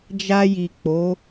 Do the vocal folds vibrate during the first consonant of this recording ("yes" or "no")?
yes